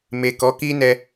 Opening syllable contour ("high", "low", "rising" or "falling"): low